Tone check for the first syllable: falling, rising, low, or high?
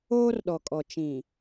high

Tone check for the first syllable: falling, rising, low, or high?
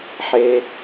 low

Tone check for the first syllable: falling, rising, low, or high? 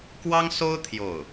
high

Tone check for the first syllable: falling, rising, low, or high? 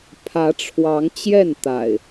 rising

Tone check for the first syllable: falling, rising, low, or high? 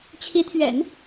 rising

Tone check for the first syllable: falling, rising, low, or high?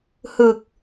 low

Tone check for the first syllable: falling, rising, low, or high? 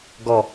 low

